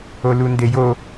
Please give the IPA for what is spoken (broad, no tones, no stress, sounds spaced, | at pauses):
o l u n d e j o